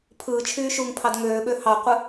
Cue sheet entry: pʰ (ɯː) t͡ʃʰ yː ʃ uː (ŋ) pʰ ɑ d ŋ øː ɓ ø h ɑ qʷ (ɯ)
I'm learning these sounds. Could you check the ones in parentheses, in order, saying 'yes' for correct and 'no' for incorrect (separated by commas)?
yes, yes, yes